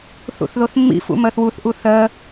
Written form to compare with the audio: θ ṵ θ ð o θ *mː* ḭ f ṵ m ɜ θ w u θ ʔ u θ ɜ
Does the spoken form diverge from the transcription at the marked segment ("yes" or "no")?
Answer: no